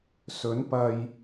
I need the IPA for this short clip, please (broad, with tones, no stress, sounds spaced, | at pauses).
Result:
s ɵ˨˥ n p ɐ˨ j